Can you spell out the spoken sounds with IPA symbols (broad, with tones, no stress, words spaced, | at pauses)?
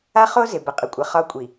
a˦χo˦ zɪ˨bə˨qʼə˨kʷʼə˨ χɒ˦kʷʼi˨